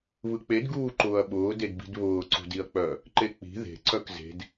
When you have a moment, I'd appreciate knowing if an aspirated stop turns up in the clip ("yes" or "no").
no